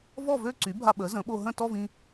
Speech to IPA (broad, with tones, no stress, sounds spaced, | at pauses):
v ɔ˥˨ v ø˥˨ ǀ y˩˥ bʱ a˧ ɓ ə˩˥ z ə̃˩˥ ɓ o˧ ɦ ə̃˥˨ t ɔ˥˨ v ĩ˧